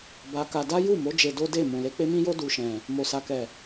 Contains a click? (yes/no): no